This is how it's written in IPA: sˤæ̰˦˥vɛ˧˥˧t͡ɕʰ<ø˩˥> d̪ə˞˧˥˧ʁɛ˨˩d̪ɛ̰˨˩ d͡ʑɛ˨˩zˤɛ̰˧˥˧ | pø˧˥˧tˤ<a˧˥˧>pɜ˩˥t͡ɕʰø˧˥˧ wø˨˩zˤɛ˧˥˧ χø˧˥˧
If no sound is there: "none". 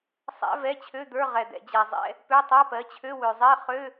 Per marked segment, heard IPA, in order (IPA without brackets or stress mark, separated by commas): ø˧˥˧, a˧˥˧